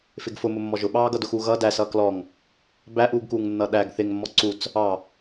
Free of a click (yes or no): no